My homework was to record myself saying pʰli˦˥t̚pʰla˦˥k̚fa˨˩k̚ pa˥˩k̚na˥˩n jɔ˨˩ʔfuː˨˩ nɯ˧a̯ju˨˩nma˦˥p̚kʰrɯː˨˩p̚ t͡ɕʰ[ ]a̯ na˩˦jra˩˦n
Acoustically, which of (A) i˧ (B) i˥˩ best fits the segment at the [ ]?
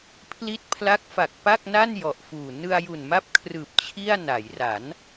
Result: B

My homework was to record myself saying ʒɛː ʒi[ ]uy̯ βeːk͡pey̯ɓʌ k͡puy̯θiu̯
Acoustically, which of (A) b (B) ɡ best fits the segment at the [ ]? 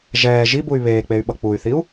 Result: A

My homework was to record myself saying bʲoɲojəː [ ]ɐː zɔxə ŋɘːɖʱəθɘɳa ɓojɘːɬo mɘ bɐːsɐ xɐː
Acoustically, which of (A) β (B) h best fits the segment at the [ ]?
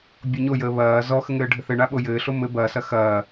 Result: A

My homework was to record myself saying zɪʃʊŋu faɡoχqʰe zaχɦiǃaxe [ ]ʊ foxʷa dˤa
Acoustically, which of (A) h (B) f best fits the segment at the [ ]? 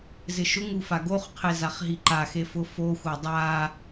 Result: B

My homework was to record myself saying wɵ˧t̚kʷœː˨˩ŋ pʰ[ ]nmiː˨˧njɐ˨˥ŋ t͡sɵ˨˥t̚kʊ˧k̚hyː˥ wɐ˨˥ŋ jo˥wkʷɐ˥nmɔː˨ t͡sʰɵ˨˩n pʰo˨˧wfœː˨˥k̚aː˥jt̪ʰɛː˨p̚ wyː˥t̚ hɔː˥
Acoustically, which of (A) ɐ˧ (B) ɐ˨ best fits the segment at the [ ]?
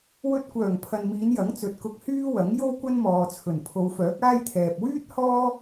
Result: B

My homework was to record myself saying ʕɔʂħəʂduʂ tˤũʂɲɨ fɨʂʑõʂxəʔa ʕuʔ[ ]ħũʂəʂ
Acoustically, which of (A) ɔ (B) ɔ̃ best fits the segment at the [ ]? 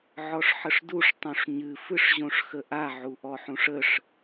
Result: A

